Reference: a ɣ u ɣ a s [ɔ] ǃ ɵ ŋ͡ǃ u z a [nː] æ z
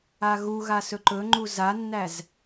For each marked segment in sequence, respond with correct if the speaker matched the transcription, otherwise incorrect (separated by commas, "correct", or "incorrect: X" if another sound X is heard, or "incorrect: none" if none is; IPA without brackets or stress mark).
incorrect: ɵ, correct